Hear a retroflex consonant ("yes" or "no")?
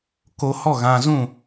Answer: no